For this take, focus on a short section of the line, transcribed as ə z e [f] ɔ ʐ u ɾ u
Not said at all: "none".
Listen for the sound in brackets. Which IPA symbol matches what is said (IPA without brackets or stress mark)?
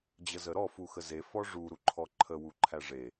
f